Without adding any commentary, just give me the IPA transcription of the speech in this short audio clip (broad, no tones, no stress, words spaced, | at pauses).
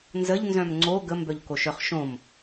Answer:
nzəʎnzœ̃m ŋ͡ǀo ɡəmbœʎkoʃœχ ʃõm